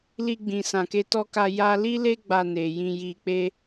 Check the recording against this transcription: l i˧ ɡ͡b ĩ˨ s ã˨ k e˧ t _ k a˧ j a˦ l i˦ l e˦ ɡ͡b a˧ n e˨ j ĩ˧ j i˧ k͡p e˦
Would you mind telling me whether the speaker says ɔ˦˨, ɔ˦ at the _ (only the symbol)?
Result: ɔ˦